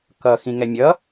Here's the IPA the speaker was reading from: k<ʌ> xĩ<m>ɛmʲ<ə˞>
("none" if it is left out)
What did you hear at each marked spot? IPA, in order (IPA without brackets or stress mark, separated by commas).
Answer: ʌ, ŋ, ʌ